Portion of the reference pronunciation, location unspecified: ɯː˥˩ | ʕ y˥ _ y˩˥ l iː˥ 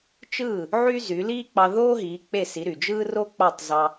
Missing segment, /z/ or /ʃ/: z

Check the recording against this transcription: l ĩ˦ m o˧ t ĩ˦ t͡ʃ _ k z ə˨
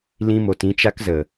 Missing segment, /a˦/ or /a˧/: a˦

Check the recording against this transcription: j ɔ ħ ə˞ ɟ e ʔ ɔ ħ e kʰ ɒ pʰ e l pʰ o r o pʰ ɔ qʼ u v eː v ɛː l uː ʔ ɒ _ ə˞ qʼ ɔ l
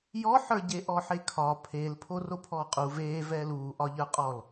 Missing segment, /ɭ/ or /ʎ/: ʎ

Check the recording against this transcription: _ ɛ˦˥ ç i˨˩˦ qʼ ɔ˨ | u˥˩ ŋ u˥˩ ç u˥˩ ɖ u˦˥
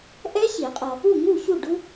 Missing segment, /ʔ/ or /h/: ʔ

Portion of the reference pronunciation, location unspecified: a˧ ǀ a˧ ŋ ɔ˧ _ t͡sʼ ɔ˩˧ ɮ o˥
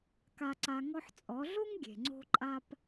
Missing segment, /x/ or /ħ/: ħ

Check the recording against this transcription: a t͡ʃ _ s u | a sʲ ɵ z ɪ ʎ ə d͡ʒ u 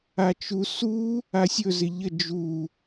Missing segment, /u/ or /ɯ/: u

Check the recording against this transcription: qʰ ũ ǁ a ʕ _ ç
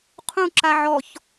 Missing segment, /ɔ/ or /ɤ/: ɔ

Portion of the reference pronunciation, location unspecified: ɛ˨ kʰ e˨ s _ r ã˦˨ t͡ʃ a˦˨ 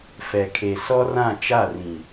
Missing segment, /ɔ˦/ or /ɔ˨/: ɔ˦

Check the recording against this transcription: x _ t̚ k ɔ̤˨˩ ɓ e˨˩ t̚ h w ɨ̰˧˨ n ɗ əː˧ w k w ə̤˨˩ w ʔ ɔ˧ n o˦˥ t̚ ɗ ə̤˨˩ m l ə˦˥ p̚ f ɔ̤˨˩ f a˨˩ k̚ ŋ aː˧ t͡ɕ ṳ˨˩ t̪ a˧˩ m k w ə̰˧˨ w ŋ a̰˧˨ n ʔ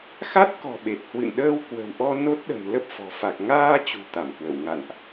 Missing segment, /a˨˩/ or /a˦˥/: a˦˥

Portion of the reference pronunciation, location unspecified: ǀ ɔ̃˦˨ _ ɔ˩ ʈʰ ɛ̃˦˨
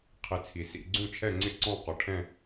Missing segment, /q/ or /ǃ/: q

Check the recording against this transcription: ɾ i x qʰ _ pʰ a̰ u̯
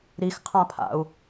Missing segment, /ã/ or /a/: ã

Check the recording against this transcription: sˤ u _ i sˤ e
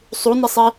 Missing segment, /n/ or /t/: n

